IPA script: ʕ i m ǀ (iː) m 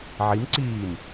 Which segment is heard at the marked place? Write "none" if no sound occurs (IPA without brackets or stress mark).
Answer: iː